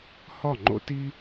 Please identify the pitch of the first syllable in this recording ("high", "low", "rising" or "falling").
falling